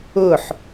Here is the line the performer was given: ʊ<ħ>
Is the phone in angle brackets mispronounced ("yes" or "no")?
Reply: no